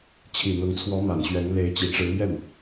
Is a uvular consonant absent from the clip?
yes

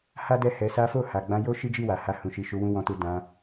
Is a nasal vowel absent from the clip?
no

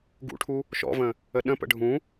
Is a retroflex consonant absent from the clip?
no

